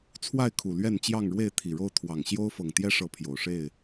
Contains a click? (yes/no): no